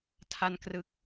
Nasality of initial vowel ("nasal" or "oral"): oral